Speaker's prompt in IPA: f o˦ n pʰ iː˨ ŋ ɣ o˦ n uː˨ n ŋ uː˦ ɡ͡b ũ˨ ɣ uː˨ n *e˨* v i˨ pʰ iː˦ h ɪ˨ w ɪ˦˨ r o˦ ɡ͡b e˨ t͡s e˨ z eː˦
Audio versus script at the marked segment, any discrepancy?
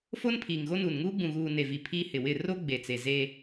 no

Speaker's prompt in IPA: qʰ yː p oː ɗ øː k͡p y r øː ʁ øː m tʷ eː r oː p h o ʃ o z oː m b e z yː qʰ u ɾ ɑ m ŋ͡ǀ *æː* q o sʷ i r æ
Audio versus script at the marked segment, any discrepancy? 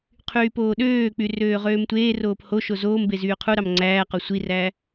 no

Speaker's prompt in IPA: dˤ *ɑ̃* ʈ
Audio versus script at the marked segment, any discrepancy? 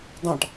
no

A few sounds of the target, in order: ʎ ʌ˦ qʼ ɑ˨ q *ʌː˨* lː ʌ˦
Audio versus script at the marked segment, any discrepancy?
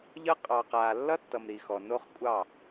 yes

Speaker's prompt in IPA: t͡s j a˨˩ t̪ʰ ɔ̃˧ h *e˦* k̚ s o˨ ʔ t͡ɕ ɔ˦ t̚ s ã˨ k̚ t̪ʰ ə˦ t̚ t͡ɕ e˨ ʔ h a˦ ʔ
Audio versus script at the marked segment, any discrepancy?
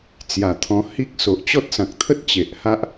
yes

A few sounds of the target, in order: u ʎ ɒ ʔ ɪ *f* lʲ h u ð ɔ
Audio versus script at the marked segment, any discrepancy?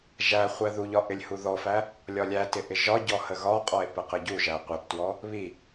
yes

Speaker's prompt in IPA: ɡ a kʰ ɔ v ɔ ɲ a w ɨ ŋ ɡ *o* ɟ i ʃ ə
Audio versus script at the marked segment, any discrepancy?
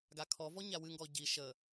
yes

